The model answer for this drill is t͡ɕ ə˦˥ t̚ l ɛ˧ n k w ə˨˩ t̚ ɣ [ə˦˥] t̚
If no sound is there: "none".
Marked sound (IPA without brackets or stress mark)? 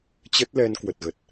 ə˨˩